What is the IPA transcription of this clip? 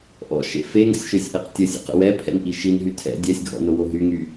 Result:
ʔ ɔ̰ ʃ ḛ f e ŋ o̰ sʲ ʃ ø sʲ ʔ ɛ q tʲ ə sʲ ə̰ q ə̰ w ɛ pʰ ɛ̰ n ʔ i ʃ i n ɦ y tʰ ɛ̰ dʲ ɛ sʲ ɡʱ ɔ̰ n o w o ɦ y ŋ y

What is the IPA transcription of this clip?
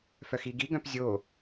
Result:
f œ x i ɡ i ɡ œ̃ p zʲ o

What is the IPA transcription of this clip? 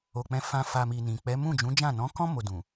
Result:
o˨ k͡p ɛ̃˧ f ã˧ f a˨ m i˨ n ĩ˨ k͡p ɛ˨˦ m ũ˦˨ d͡ʒ ũ˨˦ d͡ʒ ã˦˨ n ɔ̃˨˦ k ɔ̃˦ m o˧ d ũ˨

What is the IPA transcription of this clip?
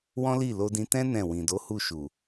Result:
w ɔ̃˦ l i˦˨ l o˧ d ĩ˧ t ɛ̃˦ n ɛ̃˦˨ w ĩ˨ d o˨˦ h u˦˨ ʃ u˨

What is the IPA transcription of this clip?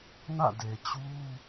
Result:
n ä̰˦˨ d e˨ t͡ɕ u˦

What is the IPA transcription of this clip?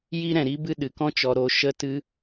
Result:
j i˦ ɾ ɛ̃˨ ɾ i˧ b ɨ˧ ɗ ɨ˨ k ɔ̃˦ t͡ʃ ɔ˧ ɾ o˧ ʃ ə˧ t ɨ˧

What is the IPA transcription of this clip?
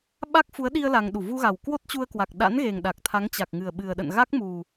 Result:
ɓ a˦˥ k̚ f u˨˦ ə̯ ɗ i˧ ə̯ l a˧ ŋ ɗ u˧˩ v u˧ ɣ a˨˩ w k w o˦˥ t̚ t͡ɕ u˧ ə̯ k w a˨˩ k̚ ɗ a̰˧˥ n ɣ e˨˩ ŋ ɗ a˨˩ k̚ t̪ʰ a˨˦ ŋ t͡ɕ a˨˩ k̚ ŋ ɨ˨˩ ə̯ ɓ ɨ˨˩ ə̯ ɗ ə̰˧˨ n ɣ a˦˥ k̚ m u˨˩

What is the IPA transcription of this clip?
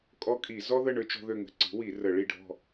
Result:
kʼ ɔ˥ kʼ i˧˩˧ z ɔ˥ ð ə˥˨ ɳ ø˥ t͡ʃ ɔ̤˥ ð ø˥˨ ŋ ə̤˥˨ ǀ i̤˩˥ w i˧˩˧ r ə˧˩˧ ɭ i˥˨ ɖʱ ɔ̤˥˨

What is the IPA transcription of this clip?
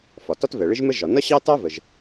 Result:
f ɒ˩ t ɒ˥ t v ɛ˩ ɭ ɪ˥ ʒ m ə˥ ʒ ɒ˩ n ʌ˥ ɕ ɑ˥ t ɑ˥ v ə˩ ʒ

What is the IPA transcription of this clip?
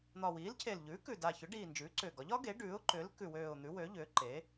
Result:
n̪ ɒ˨˩ w iː˩˥ l cʰ e˨˩ l ʎ ʉː˩˥ k ʉ˨˩ d a˨˩ ç ʏ˩˥ ɖ iː˨˩ n d͡ʒ ʉː˩˥ ǀ ʏː˨˩ ɡ ɒ˩˥ ʎ ɒ˩˥ ɡ e˩˥ ɖ ʉː˩˥ ʊ̯ ǃ ʏː˩˥ l k ʉ˨˩ w øː˨˩ ʊ̯ n̪ ʉ˩˥ w ø˩˥ ʎ ʏː˩˥ ǃ e˩˥

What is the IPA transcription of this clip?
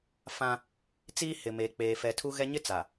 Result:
f ã˦ | t͡s iː˦ h ɪ˨ m eː˨ k͡p eː˨ f ɛ˨ tʰ u˦ ɣ ɛ˦ ɲ ɪ˦ t͡s a˨

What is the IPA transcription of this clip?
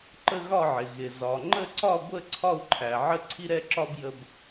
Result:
ǃ ə˦ ɣ ɒ˥˨ ʕ ɪ˩ ɣ ɪ˩ z ɒ˩ ŋ͡ǃ ə˥˨ ǀ ɒ˥˨ ɡʷ ə˥˨ ǀʰ ɒ˥˨ u̯ ǃʰ æ˩ ʕ ə˦ ǀʰ i˦ ɾ ɛ˥˨ ǁ ɒ˦ b j ə˦ b

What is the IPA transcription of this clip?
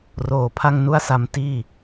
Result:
r oː˨˩ pʰ a˥˩ ŋ n u˥˩ a̯ s a˧ m t iː˥˩

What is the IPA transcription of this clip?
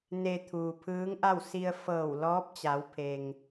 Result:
n e˧ t̪ʰ uː˩ pʰ ɯː˧˥ ŋ ʔ a˥˨ w s i˧ ə̯ f ɤː˧˩ w l ɔː˧˥ p̚ t͡ɕ a˩˧ w pʰ e˩ ŋ

